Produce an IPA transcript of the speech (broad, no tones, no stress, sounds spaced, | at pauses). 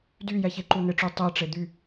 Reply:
d y j ɛ ç e ǃ u n ɪ ʈ͡ʂ y tˤ e ʈ͡ʂ e d̪ y